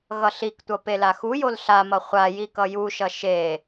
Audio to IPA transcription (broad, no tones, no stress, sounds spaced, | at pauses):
ɣ ʌ ɬ i k tʷ ʌ p e l a x u j o l ɬ a m ʌ χʷ a j i k ʌ j u ʃ ʌ ʃ e